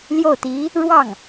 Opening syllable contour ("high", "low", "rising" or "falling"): falling